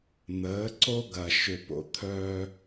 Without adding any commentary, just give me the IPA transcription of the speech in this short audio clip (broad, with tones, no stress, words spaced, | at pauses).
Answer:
n̪əː˩˥ǀo˥ ɡɐ˩ʃʏ˩po̰˩ t̪ʰœː˧